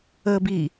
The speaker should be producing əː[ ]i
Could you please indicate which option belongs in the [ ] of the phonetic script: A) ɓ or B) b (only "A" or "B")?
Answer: B